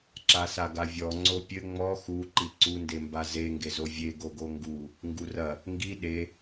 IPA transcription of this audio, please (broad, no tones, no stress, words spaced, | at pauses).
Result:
ǁasaɡavʲɔ ŋ͡ǀopʲɘ ŋ͡mɔ xu ǃiǀu ndembaze ŋɡezovʲe ɡoɡoŋɡu | ŋɡurɐ | ŋɡi ɗe